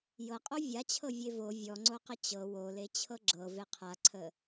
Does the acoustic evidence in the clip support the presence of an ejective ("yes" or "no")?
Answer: yes